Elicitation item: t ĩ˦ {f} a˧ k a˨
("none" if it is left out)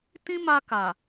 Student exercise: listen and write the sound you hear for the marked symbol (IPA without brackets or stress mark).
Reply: m